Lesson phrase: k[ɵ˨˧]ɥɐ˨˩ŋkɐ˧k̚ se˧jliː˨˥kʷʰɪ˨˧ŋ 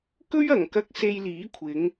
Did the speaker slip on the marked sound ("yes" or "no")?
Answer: yes